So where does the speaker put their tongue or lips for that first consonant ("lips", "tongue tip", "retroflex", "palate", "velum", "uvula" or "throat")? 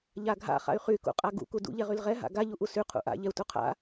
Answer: palate